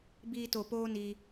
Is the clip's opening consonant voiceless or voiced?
voiced